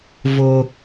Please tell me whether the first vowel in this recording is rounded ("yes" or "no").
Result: yes